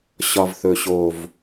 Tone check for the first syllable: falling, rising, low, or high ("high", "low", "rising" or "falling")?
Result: low